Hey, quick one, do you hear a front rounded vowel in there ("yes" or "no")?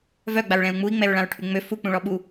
yes